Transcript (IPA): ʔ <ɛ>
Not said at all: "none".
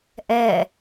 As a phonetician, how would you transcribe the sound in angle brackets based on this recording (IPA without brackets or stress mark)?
ɛ